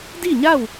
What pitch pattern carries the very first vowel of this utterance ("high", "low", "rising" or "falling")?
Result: falling